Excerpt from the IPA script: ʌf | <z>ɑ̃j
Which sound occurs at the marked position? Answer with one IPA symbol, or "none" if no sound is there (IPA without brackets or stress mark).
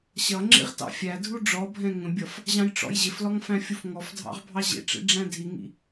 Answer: ʑ